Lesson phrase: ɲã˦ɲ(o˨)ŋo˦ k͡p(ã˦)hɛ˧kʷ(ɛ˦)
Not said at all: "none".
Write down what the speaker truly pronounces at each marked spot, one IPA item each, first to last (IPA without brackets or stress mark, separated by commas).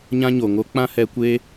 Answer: o˨, ã˦, e˦